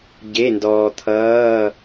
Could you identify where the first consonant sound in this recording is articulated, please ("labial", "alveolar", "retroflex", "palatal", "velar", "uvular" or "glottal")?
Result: palatal